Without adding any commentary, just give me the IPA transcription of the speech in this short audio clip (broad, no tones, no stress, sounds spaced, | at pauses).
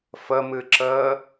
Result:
f ə m ɨ ǁ əː